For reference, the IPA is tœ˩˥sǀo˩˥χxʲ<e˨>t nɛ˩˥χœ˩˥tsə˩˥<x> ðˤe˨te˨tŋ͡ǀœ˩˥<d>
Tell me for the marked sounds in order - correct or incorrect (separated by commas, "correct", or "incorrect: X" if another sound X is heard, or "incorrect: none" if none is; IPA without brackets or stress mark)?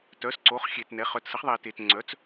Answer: correct, incorrect: χ, incorrect: t͡s